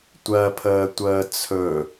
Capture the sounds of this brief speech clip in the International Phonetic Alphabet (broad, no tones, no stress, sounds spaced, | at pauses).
tʷ ɜ pʰ əː tʷ əː t͡sʰ ɵ